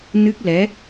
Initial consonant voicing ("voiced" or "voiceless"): voiced